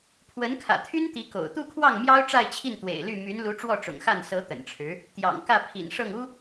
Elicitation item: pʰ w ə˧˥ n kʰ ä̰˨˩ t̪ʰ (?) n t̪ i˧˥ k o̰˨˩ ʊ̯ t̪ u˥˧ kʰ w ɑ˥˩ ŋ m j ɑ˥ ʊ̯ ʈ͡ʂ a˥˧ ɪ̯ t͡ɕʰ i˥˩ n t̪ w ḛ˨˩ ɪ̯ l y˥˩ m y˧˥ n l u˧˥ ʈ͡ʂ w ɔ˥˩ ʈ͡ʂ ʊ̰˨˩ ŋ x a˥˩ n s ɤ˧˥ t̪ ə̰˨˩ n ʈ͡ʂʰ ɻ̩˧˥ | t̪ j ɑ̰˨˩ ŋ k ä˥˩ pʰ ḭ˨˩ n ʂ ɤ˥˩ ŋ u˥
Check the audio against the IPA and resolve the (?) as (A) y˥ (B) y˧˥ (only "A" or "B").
A